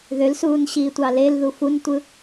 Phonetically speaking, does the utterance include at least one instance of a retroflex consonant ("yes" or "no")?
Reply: no